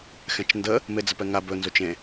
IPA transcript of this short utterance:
x ɛ̃ t͡ʃ n d ə | m e d͡z ə p ɛ ŋ a b ɵ n z o t͡ʃ ẽ

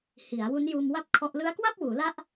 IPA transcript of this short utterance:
h i˩˦ a̯ w u˦˥ n j uː˧ m w a˥˩ p̚ kʰ ɔ˦˥ ʔ l ɯ˦˥ a̯ k w a˥˩ p̚ w uː˩˦ l a˦˥ ʔ

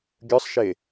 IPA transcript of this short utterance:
ɡʲ ə˞ sˤ ʃ e

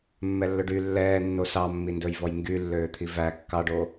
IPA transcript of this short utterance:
mː ɛ lː ɵ ɖ y lː ɛː nː o s ɑ mː i n d ɵ j v ɔ j ŋ ɡ y lː øː t̪ʰ i v æ kː ɑ ɖ o

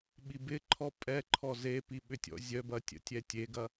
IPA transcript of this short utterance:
ɓ i b ɪ ǃʰ ɔ pʼ ɛ ǃʰ ɔ z e p i ɓ ʏ tʲ ɔ̰ zʲ œ b ɐ tʲ ə̰ tʲ ɛ tʲ e ɡ ɐ

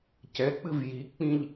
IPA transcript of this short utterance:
c ɛ k͡p ɨ v j i k͡p ĩ ʎ

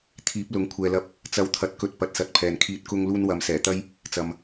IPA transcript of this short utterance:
t̪ʰ iː˨˥ p̚ l ʊ˨˥ ŋ kʷʰ ɛː˨ l ɐ˧ p̚ | t͡s ɐ˨˧ w t̪ʰ ɐ˨˥ t̚ k ɵ˨ t̚ p ɐ˧ t̚ s ɐ˧ t̚ pʰ ɛː˨ n kʰ iː˨ t̚ k ʊ˧ ŋ l uː˧ n w ɐ˨˧ m s ɛː˨˩ t̪ ɐ˥ j | t͡s ɐ˨ m

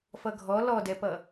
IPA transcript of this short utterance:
f ʌ ɡʱ ɔ l ɔ d ɛ p ʌ

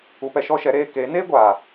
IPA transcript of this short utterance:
u˧ p ɛ˧ ʃ ɔ˦ ʃ ɛ˨˦ ɾ eː˧ k e˨˦ n eː˦ ɡʷ aː˨

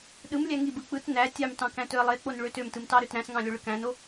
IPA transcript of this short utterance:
ɗ ɯ m lʲ æ ŋ i b ɯ k͡p ɯ t n æ tʲ ɑ m t ɑ̃ k æ̃ t ø ə̯ lˠ e k͡p o n ɭ ø t ø m t ɯ m t ɑ ɾ ø t ɾ æ̃ s ŋ ɑ̃ lʲ o ɭ ɯ k æ̃ n o

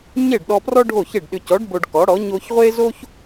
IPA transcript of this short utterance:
ɲ e˥˩ ɖ ɗ ɔ˧ p r ɔ˥ ɖʱ o˥˩ ç e˥˩ ɖ ɗ ʏ˧ c ɔ˩˥ ɖ b o˧ ɖ k ɔ˩˥ ɽ ɔ˩˥ ɲ o˧ ç ʁʷ e˥ z o˥ ç

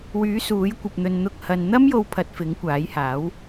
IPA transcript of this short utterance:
w yː˨˥ s uː˨˥ j kʷ ɐ˧ p̚ n̪ ɵ˧ n n̪ ʊ˧ k̚ h ɐ˨ n n̪ ɐ˥ m j o˧ w pʰ ɐ˧ t̚ f ɪ˨˥ ŋ kʷ aː˨˥ j h aː˨˥ w

